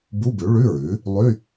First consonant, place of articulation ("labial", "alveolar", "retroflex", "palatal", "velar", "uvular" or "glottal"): labial